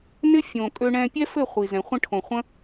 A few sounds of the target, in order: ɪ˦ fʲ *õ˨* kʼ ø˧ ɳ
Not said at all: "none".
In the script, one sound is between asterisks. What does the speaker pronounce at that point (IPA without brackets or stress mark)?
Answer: õ˨